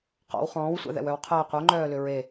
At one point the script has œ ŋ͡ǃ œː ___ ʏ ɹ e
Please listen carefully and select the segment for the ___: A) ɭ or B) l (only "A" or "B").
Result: B